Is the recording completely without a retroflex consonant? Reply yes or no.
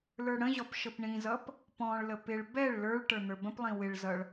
no